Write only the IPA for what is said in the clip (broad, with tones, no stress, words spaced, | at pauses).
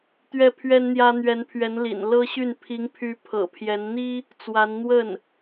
t̪ɥɛ˥˩pʰɥɛ˥nn̪jä˥ n̪ɥɛ˧˥npʰɥɛ˧˥n lḭ˨˩n lɤ˥ɕy˥˩n pʰi˧˥ŋpʰy˧˥ pʰɤ̰˨˩pʰjɛ˧˥n n̪i˥ | t͡swa˧˥nn̪wə˥˩n